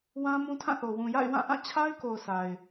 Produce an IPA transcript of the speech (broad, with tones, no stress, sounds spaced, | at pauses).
w ã˦ m ũ˦ tʰ ã˦˨ θ o˨ w ũ˨ j a̰˦˨ ɪ̯ w ã˦˨ ʔ ã˦˨ t͡ɕʰ a˦ ɪ̯ k o˨ ʊ̯ sʰ a˨ ɪ̯